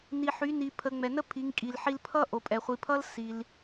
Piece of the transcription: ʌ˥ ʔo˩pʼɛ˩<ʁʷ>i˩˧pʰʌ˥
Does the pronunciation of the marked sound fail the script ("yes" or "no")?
yes